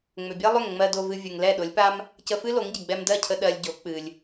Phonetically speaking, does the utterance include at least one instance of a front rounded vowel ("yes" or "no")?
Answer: yes